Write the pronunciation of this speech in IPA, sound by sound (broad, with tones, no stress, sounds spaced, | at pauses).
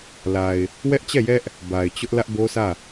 l a˨ ɪ̯ | w ɛ˦ ʔ t͡ɕ ɛ˦˨ j ɛ˦ ʔ | b a˨ ɪ̯ t͡ɕ ʊ˦ ʔ l ä˦ ʔ b o˦ sʰ ä˦˨